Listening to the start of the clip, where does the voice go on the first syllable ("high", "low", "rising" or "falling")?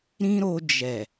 high